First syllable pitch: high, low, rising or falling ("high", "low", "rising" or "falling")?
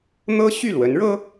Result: high